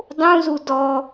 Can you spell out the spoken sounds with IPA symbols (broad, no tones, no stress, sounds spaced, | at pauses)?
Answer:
dˤ ũ z u d ɔ